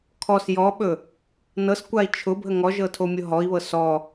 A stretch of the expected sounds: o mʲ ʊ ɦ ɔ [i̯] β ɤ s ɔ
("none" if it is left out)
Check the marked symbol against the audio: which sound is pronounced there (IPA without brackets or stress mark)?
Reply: i̯